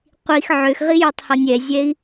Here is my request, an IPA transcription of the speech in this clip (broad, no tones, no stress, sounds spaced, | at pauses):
qʷ i x ʕ ø x ʁ i j ø tˤ h ɔ nʲ ɛ zʲ ɛ i̯